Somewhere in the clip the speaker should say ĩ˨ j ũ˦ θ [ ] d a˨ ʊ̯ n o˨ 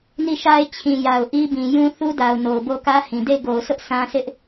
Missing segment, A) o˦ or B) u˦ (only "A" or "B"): B